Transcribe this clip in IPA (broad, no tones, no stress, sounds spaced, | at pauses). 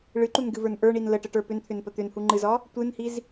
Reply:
ɭ ɨ ǃ u n ɡ ɨ v ə˞ n ʔ ə˞ ɳ i n l ə ʈ ə ʈ ə˞ p ʏ n t̪ʰ ʏ n p ə t̪ ʏ n h u ŋ͡ǃ ɨ z ɒ | tʷ ɨ n h i z